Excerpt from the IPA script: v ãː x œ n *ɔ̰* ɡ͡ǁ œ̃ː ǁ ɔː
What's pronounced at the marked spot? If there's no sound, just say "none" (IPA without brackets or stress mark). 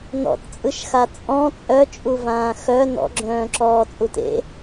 ɔ̰